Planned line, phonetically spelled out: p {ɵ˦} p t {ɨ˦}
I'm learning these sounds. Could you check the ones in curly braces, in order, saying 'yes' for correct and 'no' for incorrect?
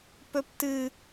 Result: yes, yes

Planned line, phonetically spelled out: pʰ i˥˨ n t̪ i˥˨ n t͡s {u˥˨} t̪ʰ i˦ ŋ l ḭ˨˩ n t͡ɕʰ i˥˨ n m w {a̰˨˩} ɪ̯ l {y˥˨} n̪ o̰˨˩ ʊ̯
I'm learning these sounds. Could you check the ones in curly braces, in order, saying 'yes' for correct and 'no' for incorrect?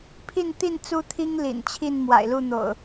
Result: no, yes, no

